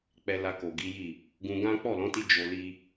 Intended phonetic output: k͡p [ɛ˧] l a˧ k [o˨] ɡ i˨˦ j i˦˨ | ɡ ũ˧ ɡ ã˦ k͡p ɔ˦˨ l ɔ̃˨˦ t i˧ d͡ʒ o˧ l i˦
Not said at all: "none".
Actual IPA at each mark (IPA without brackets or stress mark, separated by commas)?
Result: ɛ˧, o˨